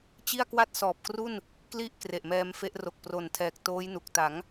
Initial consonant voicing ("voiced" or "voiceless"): voiceless